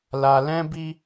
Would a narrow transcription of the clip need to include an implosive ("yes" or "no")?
no